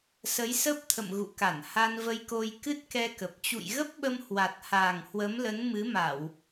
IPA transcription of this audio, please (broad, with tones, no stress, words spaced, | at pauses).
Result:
sə˨˦j sə˦˥p̚t̪ʰə̰˧˨m ɣṵ˧˨ka˧˩n ha˧nvə˧jko˧j kɨ˦˥t̚kɛ˧kə˨˩p̚ t͡ɕṵ˧˨jɣə˦˥p̚ɓə˧m hwa˨˩t̚ha˨˩ŋ hwə˨˦mlə˨˦nmɨ˨˦ma˧˩˨w